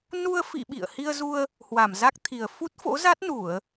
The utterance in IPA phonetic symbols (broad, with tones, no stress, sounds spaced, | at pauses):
n u˧ ə̯ f ḭ˧˨ ɓ ḭ˧˨ ə̯ h i˧ ə̯ z u˧ ə̯ | h w a˧˩ m z a˦˥ k̚ t̪ʰ i˨˩ ə̯ f u˦˥ t̚ f o̰˧˥ z a˦˥ t̚ n u˧˩˨ ə̯